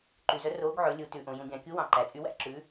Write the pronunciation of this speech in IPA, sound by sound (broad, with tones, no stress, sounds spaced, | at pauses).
ǃ y˨ z œ˨˦ r oː˨˦ ɡ ʕ ɵ˨˦ lʲ u˨˦ t ʉ˨ ʔ õ˨ j ũ˨ ɡʲ ɑ̃˨ kʲ u˨˦ w ɑ̃˨˦ ǃ æ˨ t͡sʼ y˨˦ w æ̰˨˦ ǁ ʉ˨˦